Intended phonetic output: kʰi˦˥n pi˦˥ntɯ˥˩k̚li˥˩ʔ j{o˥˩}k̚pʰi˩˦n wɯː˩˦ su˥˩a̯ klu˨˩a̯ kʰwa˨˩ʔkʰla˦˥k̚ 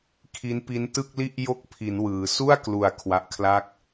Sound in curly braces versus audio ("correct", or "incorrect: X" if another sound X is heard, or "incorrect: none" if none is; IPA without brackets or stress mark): correct